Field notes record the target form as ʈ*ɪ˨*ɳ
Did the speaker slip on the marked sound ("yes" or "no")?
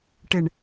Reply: no